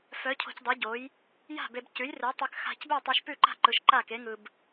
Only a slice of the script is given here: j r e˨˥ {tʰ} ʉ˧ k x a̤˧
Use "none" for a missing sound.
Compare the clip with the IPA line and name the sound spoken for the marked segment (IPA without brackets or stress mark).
tˤ